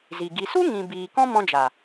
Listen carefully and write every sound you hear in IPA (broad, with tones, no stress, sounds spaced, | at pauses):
z i˨ ɡ i˨ s u˦ ŋ ĩ˨ b iː˨ k ɔ̃˦ m ɔ̃˧ d͡ʒ a˨